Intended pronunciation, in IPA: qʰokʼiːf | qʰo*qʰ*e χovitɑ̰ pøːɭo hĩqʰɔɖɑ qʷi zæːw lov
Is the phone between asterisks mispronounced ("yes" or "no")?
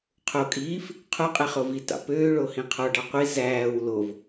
yes